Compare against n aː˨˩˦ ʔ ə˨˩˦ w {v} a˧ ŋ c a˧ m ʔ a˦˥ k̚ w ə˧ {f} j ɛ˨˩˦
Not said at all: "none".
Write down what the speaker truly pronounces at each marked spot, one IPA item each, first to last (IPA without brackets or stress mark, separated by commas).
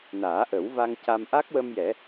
v, m